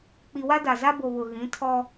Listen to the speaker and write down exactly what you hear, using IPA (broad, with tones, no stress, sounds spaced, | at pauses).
k͡p i˨ w a˦ d a˨ z a˦ b o˨ β ʊ˨ ɣ ĩ˨˦ tʰ ɔ˦